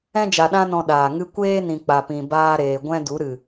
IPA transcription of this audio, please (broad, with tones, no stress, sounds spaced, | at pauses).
ɛ̃˧ d͡ʒ a˨ ɗ ã˧ n ɔ̃˧ ɗ aː˨ ŋ ɨ˦ kʷ eː˦ n ĩ˨ k͡p a˨ p ĩ˨ b aː˧ ɾ eː˨ ɡʷ ɛ̃˦ d u˨˦ ɾ ɨ˨